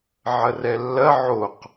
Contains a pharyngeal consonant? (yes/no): yes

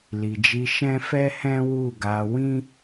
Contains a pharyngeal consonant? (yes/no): no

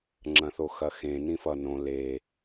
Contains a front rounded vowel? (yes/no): no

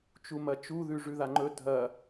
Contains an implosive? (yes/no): no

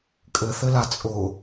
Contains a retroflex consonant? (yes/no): no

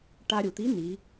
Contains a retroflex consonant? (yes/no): yes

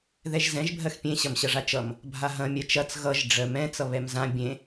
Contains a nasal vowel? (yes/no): yes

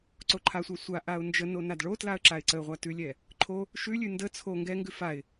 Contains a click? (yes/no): yes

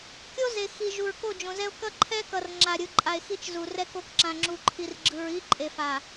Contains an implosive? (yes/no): no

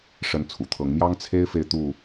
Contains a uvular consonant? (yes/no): no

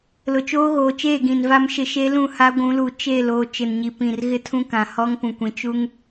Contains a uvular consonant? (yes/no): no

